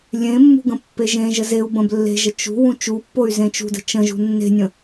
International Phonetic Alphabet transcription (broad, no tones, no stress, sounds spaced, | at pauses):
lʲ ẽ mː ṳ ɡ ə̃ pː e ʒ ẽ ʒ ə z e u̯ b ə̃ b lː e̤ ʒ ə t͡ʃ ṳ w ũ t͡ʃ u pː o y̯ z ẽ t͡ʃ ṳ d ə̤ t͡ʃ ə̃ ʒ ṳ nː e̤ nʲ ə̃